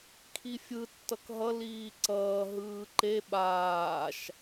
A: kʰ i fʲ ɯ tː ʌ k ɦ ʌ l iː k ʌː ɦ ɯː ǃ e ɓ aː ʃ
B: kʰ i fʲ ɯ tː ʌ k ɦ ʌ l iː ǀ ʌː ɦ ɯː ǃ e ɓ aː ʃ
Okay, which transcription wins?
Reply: B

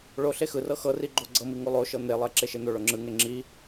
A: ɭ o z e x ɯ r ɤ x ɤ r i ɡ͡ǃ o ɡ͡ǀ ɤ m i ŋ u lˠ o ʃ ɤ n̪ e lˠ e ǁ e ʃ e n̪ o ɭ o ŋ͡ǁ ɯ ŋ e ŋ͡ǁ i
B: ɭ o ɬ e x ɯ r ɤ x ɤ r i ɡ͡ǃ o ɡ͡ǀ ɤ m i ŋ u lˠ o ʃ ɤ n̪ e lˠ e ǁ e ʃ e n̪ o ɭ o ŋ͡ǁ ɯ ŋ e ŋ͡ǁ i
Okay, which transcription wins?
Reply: B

